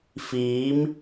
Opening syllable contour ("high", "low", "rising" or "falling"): rising